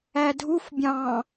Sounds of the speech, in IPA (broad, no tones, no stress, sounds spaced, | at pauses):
æ dʱ u f bʲ ɑ̃